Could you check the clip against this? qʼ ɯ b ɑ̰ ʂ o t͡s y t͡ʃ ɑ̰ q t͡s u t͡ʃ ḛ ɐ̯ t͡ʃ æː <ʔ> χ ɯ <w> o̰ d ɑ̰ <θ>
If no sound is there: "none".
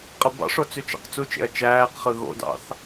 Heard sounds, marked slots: q, ɣ, θ

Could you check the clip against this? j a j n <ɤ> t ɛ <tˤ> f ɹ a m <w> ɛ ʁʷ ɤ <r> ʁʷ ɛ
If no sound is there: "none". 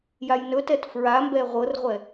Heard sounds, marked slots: ɵ, t, b, r

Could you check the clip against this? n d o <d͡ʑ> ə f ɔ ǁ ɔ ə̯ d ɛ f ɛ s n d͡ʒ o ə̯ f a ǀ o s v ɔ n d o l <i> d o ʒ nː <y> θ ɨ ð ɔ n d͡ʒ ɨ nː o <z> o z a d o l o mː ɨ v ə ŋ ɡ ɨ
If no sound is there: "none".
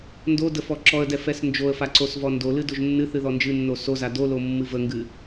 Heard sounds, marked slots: d, ɨ, ɨ, s

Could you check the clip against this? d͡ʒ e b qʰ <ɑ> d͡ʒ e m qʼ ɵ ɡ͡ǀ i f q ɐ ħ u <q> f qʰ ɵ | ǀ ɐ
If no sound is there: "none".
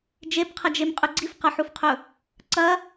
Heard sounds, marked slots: ɐ, none

